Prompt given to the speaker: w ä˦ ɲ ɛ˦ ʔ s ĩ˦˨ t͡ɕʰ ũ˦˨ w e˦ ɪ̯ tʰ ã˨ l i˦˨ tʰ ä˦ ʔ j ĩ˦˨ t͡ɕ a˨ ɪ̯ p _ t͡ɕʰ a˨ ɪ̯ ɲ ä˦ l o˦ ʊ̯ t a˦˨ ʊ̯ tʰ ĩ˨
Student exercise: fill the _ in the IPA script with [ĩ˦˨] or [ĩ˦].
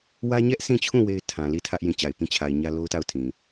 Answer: ĩ˦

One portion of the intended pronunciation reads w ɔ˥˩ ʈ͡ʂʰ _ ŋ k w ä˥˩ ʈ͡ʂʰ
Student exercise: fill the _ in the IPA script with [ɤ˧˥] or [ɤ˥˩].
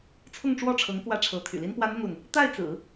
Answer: ɤ˧˥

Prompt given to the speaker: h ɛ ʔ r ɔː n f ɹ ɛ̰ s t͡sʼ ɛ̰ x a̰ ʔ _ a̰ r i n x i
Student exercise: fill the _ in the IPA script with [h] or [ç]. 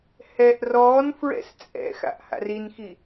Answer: h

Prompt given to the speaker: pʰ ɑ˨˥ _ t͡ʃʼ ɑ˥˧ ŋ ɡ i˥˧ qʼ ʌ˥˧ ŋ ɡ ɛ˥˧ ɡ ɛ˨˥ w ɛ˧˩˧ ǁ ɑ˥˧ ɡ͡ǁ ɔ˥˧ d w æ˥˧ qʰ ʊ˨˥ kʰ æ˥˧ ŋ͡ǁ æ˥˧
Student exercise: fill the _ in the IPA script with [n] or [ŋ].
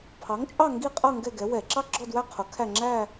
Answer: ŋ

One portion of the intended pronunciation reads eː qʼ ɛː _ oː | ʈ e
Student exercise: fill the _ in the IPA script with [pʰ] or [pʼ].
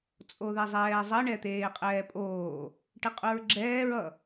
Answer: pʼ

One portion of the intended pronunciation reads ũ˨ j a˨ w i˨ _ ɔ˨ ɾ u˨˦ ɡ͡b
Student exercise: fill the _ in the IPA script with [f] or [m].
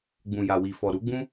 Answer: f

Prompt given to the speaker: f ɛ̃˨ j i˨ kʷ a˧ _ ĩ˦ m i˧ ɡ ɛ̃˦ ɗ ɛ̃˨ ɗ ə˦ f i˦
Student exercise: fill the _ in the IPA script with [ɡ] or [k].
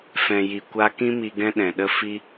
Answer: k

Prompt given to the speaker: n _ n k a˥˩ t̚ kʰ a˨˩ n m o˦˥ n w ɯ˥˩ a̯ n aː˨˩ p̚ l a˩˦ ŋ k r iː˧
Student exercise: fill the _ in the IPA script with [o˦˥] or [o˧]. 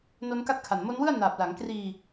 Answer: o˦˥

